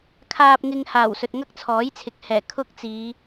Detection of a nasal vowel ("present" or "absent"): absent